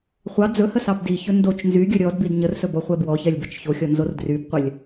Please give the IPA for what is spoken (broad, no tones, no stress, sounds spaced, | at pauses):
χʷ ɑ d͡z ɵ h ə s ɑ b d i ç ɵ n d o t͡ʃ n z y ɡʲ ɵ ɾʲ ɔ d b i d ɲ ə r s ɵ b ɔ χʷ ɛ b w ɔ ç ɛ lʲ b ɛ t͡ʃ ç o xʲ ɔ n z o r d r y b qʷ ə lʲ